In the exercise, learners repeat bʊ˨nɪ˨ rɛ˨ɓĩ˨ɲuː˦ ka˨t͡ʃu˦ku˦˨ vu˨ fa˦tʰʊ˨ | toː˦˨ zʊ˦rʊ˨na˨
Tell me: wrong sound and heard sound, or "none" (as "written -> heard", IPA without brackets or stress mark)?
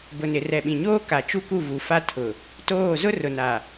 uː˦ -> oː˦